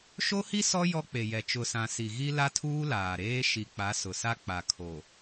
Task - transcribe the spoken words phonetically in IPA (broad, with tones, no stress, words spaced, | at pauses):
ʃo˦hi˦ sɔ˦ jɔ˦k͡pe˨jɛ˨ t͡ʃʊ˨sã˨ si˨ɣi˦ la˦tʰuː˦ laː˨ɾeː˦ ʃi˨k͡pa˨˦ sʊ˨sa˦k͡pa˨ kʰo˨